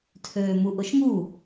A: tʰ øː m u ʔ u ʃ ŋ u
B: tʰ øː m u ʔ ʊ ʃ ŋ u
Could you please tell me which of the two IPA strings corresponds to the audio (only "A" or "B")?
B